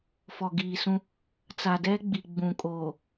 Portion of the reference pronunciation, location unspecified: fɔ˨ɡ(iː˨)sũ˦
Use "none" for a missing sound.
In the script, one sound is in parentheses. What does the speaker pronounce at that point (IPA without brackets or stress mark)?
iː˨